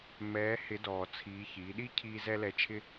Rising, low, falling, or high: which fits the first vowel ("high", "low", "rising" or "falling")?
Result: rising